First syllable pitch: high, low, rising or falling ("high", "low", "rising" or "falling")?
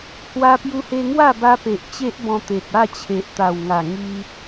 high